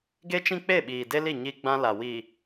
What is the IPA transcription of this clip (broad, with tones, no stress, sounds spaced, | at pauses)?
ɡ e˦ t͡ʃ ĩ˦ k͡p e˦˨ ɓ iː˨ d e˦ l i˦˨ ɲ i˦ ɡ͡b ã˦ l a˨ w i˨